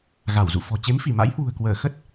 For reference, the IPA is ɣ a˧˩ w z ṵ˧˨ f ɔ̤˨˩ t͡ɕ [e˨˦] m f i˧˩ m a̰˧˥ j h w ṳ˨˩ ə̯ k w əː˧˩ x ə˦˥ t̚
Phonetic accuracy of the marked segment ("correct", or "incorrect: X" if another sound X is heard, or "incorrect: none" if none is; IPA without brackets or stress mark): correct